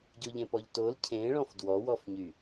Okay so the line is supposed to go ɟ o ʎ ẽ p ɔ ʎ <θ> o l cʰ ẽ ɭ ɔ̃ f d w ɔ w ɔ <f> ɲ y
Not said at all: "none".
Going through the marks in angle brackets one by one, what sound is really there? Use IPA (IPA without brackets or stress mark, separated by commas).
t, f